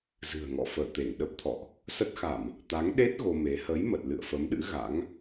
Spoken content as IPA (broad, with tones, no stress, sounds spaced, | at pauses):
z ɨ̤˨˩ ə̯ ŋ ɔ̰˧˨ f əː˧˩ t̪ e˧˩ ŋ ɗ ə˦˥ p̚ t̪ʰ ɔ̰˧˨ ʔ | s ə˦˥ t̚ x a˧˩˨ m | t̪ a˨˦ ŋ ɗ e˦˥ t̚ ɣ o˧ m e˨˦ h ə˨˦ j m ə˨˩ t̚ l ɨ̰˧˨ ə̯ f ə˨˦ m ɗ ɨ̰˧˥ ɣ a̰˧˥ ŋ